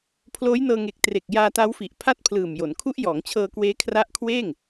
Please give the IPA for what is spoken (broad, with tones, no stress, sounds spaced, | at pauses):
pʰ l oː˦˥ j n ɤː˧ ŋ e˨˩ k̚ t r e˨˩ k̚ j aː˧ t a˦˥ w f i˨˩ ʔ pʰ a˥˩ t̚ pʰ l ɯː˨˩ m j o˩˦ n kʰ u˦˥ ʔ j ɔː˩˦ ŋ t͡ɕʰ ɤː˧ k w eː˦˥ kʰ r a˦˥ ʔ kʰ w eː˥˩ ŋ